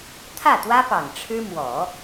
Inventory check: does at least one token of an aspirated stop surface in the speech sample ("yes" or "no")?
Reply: yes